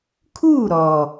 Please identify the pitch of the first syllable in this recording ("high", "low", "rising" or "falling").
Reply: falling